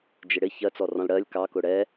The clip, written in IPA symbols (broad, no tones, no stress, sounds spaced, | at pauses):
d͡ʒ ɪ ɽ ɪ ç ɜ t͡s ɔ r ɔ̃ l ɽ ɜ lʲ k ɑ k ʊ ɽ ɛ